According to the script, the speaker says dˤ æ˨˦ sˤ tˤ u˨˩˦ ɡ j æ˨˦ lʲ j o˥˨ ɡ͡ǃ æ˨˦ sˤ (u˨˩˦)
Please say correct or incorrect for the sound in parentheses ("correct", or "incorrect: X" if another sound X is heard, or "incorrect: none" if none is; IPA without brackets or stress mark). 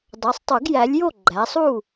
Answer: incorrect: u˥˨